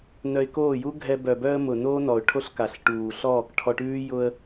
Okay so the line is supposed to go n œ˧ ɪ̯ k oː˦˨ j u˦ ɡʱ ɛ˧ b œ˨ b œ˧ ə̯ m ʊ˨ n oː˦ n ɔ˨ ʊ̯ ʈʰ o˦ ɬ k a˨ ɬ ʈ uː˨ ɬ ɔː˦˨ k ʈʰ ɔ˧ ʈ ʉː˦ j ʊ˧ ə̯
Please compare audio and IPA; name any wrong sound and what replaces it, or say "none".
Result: none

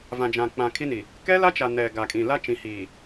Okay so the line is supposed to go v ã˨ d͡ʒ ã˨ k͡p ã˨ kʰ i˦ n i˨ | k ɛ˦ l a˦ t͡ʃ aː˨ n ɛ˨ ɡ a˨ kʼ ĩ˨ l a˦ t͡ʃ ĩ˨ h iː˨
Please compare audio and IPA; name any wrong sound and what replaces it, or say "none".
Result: aː˨ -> a˨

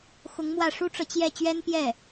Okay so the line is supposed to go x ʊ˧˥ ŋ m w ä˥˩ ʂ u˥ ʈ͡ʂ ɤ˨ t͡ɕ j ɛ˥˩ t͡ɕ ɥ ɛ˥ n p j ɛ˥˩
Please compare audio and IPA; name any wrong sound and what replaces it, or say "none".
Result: none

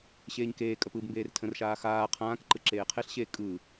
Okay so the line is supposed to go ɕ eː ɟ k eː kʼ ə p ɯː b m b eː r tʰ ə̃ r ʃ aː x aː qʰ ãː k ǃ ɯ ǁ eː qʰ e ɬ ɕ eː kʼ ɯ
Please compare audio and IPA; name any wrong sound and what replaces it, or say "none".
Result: ɟ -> ɲ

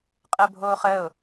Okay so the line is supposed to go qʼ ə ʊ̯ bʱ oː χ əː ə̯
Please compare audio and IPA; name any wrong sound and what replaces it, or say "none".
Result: ə̯ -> ʊ̯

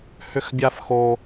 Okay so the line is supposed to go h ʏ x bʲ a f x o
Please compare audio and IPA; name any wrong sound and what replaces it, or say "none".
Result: none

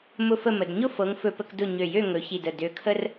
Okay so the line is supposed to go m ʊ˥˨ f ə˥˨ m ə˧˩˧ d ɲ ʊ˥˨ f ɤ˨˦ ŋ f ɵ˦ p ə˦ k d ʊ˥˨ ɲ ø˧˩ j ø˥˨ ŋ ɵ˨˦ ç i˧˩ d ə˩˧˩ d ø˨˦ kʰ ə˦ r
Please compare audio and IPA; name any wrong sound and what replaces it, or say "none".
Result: none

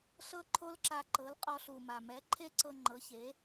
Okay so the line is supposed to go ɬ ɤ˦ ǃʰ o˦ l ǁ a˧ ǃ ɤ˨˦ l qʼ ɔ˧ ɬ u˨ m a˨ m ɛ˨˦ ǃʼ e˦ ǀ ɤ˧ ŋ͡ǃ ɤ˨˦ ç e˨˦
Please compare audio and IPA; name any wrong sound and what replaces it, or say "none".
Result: ǃʼ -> ǃʰ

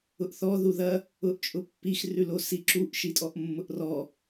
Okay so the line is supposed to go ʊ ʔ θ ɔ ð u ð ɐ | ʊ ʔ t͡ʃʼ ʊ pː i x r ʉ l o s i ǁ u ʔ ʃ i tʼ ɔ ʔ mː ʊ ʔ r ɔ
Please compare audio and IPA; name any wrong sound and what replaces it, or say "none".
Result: none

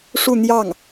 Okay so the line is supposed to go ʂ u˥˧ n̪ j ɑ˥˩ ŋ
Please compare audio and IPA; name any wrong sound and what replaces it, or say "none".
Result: none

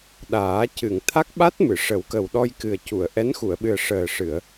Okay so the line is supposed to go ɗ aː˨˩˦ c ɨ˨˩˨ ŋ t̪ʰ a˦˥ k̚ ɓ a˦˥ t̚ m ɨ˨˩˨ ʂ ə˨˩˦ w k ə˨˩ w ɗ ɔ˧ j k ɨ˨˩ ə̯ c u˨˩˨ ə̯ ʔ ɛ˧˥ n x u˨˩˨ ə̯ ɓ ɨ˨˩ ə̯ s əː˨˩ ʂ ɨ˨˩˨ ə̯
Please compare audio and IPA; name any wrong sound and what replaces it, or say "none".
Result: s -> ʂ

